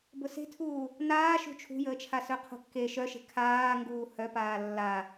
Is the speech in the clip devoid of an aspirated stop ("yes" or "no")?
no